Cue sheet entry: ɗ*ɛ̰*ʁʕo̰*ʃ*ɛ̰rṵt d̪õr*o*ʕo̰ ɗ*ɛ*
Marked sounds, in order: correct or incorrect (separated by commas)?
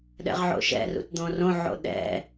correct, correct, incorrect, incorrect